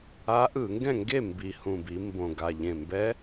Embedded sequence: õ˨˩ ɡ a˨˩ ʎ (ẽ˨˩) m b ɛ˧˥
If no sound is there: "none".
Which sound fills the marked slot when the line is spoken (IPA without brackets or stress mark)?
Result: ẽ˨˩